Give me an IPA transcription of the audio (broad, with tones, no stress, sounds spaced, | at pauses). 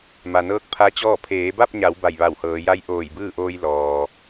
m a˩ n ɤː˧˥ k̚ pʰ a˧˥ t͡ɕ ɔː˥˨ pʰ eː˩˧ b a˥˨ p̚ ɲ a˩˧ w b a˧˩ j ʋ a˧˩ w h ɤː˩˧ j a˧˥ j ʔ oː˧˩ j b ɯː˥˨ ʔ oː˧ j l ɔː˩